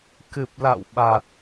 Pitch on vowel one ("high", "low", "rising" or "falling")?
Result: low